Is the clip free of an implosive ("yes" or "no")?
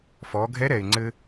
yes